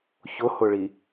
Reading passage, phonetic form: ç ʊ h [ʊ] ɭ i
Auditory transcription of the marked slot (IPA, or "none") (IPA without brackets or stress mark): ʊ